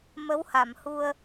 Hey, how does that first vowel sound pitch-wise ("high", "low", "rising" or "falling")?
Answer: rising